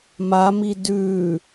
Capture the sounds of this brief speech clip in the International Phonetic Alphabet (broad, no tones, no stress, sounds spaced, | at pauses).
m a m i d ʉ